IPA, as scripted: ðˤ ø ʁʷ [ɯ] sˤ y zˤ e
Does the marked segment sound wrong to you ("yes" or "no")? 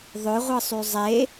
no